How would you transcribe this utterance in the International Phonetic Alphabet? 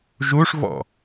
ʒ u ʂ v ɔ̰

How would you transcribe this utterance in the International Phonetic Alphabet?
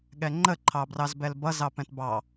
ɠ ɛ ŋ͡ǃ ə ǃʰ ɑ b r ɑ z b ɛ l b ʌ z ɑ p ɛ̃ t b ɑ

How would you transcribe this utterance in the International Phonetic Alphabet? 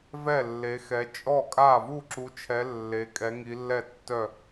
v ɛ˥˩ lː e˨˦ x ɛ˨˦ t͡ʃʼ ɔ˥˩ kʼ a˥˩ v u˥˩ ǁ u˨˦ t͡ʃʰ ɛ˨˦ lː e˨˦ kʼ ɛ˨˦ ŋ i˨˦ lː ɛ˥˩ tː œ˥˩

